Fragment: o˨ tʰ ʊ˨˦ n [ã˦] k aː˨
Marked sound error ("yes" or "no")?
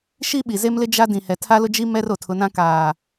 no